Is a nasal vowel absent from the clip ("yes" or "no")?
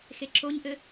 yes